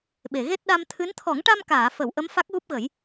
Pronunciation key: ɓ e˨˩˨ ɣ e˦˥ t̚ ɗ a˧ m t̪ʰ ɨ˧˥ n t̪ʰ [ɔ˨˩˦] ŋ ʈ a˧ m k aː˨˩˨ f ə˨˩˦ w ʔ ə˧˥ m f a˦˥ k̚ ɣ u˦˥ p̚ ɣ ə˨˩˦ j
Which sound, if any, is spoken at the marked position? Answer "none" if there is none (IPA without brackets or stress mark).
ɔ˨˩˦